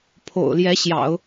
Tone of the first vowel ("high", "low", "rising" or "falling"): low